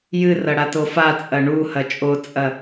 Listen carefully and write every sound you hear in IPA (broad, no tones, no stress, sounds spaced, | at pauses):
j ɨ r ɐ ɽ a t o f a t͡sʼ ɐ ɳ u h ɐ t͡ʃʼ o t͡sʼ ɐ